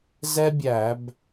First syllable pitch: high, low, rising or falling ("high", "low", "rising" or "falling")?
high